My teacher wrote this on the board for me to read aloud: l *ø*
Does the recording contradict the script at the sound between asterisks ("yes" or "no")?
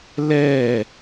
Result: yes